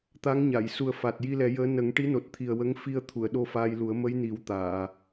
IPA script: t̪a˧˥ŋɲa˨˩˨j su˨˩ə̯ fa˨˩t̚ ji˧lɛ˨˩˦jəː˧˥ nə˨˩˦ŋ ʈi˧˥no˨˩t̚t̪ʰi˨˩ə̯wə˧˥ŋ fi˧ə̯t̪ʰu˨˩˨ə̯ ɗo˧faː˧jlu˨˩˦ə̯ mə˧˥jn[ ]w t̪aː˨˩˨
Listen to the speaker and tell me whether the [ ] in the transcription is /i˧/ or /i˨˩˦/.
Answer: i˨˩˦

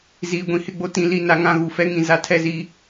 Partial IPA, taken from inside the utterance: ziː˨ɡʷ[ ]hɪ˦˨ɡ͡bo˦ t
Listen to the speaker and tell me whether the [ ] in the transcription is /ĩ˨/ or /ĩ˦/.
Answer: ĩ˨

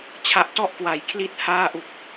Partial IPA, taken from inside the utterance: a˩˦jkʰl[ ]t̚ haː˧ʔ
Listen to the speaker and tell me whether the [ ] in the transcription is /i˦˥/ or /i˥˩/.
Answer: i˦˥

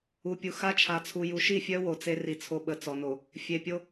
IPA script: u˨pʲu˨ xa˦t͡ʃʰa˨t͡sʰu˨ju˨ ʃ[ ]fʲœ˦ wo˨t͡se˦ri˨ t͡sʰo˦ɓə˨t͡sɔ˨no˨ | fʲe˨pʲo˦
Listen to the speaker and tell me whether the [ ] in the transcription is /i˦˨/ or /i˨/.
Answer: i˦˨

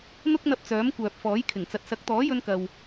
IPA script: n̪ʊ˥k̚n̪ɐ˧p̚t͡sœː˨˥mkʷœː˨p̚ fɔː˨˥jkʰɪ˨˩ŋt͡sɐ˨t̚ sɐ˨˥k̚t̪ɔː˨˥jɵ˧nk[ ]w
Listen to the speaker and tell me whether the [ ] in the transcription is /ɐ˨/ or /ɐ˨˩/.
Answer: ɐ˨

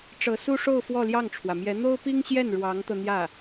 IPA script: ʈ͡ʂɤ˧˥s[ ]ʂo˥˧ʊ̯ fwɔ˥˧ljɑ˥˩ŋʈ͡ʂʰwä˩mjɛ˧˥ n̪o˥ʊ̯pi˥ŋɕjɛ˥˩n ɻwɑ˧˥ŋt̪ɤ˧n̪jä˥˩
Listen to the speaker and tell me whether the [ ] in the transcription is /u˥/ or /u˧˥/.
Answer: u˥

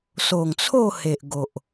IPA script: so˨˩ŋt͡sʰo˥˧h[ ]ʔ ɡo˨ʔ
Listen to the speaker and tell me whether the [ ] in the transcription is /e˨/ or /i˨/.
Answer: e˨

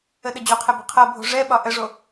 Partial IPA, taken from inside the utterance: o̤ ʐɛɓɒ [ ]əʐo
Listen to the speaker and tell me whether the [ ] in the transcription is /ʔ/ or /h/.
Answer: ʔ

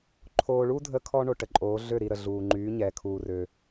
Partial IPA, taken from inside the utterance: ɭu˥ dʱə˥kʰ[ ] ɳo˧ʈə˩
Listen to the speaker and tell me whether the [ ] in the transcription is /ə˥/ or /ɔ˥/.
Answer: ɔ˥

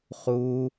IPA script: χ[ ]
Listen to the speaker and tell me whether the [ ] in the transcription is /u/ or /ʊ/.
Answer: u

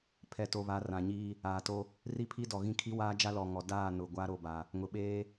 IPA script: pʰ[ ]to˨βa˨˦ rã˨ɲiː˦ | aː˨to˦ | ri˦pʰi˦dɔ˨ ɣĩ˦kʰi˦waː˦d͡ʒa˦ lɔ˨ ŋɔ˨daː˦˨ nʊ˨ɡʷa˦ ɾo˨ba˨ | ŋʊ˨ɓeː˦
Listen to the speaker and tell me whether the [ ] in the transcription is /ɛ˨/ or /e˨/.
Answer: ɛ˨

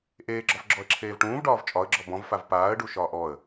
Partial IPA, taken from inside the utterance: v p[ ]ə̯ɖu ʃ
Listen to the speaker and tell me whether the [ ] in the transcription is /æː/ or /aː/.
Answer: aː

